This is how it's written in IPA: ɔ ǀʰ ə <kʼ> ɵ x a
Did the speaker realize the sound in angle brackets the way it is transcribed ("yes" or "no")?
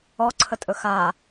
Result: no